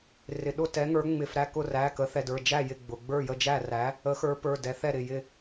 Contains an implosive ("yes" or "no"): yes